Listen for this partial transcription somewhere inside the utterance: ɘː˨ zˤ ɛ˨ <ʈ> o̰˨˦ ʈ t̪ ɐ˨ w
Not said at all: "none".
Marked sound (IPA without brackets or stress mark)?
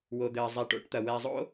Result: ʈ